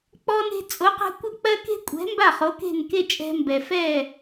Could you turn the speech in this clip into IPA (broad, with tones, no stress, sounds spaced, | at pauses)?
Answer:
k͡p ɔ˧ n e̤˧ t͡sʼ o˩˥ q ɛ̤˧ kʷ ə˥˩ k͡p ɜ˥ k e̤˥ kʷʼ ɛ̤˩˥ m b a˥˩ χ o˩˥ k e̤˥˩ n k e˥ t͡ʃʼ ɛ̤˧ m b ɛ˩ f ɛ˥˩